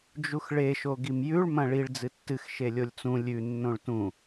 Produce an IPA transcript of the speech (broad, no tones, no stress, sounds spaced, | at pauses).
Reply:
d͡ʒ u x ɭ e ʃ o ɡ i m j ʉ ɭ m ɐ̃ ɭ i ɭ d͡z ɨ tː ɨ x ʃ e lʲ o lʲ t͡s ũ lʲ ʉ nː õ ɭ t ũ